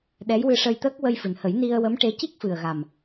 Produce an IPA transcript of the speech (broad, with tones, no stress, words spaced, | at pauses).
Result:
ɗɛ˧˥jwɨ˧ ʂə˧jt̪əː˦˥k̚ wə˧jfɨ˨˩nhə˨˩˦j ni˧ə̯wə˧˥mʈe˧˥ ci˦˥k̚fɨ˨˩ə̯ɣa˨˩m